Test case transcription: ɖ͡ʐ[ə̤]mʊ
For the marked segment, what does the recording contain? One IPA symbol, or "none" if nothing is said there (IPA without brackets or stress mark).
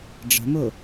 ə̤